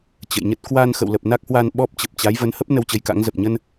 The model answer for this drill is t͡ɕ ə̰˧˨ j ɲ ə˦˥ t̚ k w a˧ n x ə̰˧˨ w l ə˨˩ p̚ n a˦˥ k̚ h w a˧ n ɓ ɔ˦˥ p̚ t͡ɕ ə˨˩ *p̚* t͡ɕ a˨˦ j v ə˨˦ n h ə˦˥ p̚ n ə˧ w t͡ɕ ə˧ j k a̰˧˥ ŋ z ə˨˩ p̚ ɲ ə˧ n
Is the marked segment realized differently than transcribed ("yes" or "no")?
no